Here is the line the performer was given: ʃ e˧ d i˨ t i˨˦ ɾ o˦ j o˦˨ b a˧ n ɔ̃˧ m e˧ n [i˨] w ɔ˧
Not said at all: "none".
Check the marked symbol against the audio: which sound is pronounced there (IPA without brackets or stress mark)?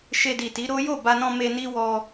i˦